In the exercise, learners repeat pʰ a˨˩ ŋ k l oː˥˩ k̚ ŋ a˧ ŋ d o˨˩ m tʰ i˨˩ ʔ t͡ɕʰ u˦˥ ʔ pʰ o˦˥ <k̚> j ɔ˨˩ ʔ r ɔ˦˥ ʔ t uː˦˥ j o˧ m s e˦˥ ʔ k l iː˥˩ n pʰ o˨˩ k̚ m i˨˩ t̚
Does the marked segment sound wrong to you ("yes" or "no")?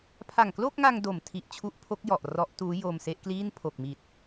no